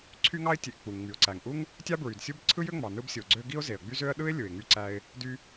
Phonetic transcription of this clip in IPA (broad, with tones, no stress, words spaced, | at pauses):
ǀʰy˥ŋɑ˥ɪ̯tʲe˩ʔ k͡pu˩ŋŋ͡my˩ʊ̯ǀæ˩ŋ ʔu˥ŋ | tʲɑ˥bɹy˩dsʲu˥b ǀʰɯ˥jø˥ŋ͡mɑ˩ nɯ˥bsʲo˩ɡ͡ǀø˥ ɡi˥ʊ̯ze˩ə̯ɡ͡by˥zø˥ə̯ ɗɯ˥ɪ̯ lʲɯ˩ɪ̯ŋy˥ ǀæ˥ɪ̯ | dy˥